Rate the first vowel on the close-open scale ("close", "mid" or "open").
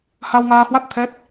open